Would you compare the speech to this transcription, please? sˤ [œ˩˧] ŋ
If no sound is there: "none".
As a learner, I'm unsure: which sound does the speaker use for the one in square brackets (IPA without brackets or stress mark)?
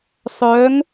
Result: œ˩˧